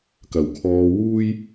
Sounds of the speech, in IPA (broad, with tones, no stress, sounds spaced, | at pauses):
k ɐ˨˩ w kʰ ɔː˧ w uː˥ j